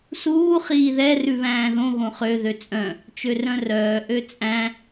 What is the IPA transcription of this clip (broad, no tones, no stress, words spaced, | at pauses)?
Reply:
suː χiːðɛ rʉβæ̃ːðõ ɣõχø ðøt͡sʼœ̃ | t͡ʃørœ̃rœː ʔøt͡sʼæ̃